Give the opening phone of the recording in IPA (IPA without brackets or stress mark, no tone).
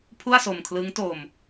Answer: pʰ